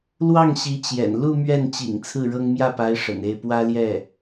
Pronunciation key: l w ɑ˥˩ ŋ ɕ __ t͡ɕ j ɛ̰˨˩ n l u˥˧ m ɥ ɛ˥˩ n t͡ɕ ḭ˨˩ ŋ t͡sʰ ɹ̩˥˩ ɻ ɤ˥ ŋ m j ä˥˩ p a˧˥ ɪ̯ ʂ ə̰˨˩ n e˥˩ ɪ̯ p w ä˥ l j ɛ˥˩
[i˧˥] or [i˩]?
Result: i˧˥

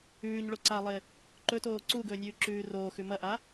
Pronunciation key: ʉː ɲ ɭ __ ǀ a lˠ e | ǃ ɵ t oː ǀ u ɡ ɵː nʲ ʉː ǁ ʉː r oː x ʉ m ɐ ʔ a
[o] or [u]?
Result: o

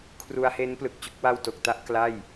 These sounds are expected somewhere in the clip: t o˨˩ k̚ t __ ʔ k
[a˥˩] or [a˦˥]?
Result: a˥˩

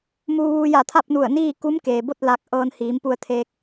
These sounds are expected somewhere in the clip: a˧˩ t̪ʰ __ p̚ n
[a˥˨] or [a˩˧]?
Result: a˥˨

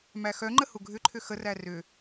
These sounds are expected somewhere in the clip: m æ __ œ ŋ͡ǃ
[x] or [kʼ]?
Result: x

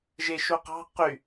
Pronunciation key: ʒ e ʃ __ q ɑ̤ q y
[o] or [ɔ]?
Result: o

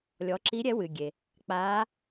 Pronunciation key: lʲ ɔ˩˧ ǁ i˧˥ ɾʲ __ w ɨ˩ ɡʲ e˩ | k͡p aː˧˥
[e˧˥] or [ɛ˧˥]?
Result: ɛ˧˥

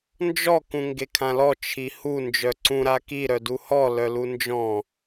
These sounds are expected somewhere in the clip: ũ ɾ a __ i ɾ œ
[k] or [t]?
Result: k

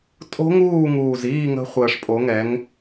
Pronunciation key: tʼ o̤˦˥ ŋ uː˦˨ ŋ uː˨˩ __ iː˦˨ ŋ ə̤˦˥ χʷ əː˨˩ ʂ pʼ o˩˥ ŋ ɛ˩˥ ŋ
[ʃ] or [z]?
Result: z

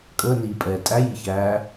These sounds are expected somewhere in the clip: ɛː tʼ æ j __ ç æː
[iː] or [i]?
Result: i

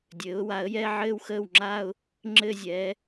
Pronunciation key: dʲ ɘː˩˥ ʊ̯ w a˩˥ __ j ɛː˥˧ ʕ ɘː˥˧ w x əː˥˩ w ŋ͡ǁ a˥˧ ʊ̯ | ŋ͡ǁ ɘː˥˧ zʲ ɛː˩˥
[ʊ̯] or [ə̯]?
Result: ə̯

